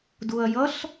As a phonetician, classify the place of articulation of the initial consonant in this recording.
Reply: alveolar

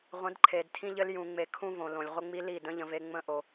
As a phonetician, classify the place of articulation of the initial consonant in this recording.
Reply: uvular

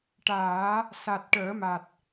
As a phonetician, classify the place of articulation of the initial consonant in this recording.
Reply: retroflex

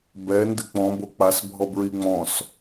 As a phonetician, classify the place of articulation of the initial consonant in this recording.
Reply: labial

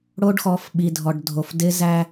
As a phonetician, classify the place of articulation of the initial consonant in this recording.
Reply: retroflex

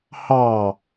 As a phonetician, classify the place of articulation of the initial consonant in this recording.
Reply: glottal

